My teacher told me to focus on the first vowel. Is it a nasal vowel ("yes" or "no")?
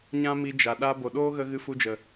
yes